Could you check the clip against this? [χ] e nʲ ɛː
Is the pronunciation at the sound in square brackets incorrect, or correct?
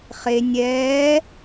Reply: correct